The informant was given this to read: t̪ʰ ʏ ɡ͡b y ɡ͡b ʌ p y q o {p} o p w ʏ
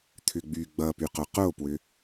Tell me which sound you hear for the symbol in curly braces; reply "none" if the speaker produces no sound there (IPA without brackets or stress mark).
q